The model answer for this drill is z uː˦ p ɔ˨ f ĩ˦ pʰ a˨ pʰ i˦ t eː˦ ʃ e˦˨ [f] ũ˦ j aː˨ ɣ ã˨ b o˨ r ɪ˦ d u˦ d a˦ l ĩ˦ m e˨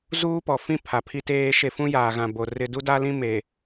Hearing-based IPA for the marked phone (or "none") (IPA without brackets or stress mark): f